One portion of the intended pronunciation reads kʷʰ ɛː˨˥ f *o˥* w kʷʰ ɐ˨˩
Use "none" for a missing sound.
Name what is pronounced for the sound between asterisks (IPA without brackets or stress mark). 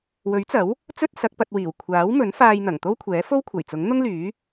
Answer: o˥